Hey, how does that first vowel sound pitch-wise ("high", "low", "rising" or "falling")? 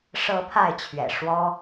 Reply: rising